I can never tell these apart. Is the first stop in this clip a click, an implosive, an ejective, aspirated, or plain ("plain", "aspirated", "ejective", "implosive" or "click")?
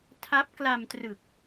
aspirated